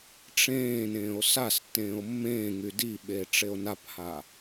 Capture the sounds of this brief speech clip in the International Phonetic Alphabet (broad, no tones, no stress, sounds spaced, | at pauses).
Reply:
ʈ͡ʂ ẽː n ẽː o̯ s a s tː ẽː o̯ mː ẽː ŋ y d i ɓ e ʈ͡ʂ e o̯ n a p h a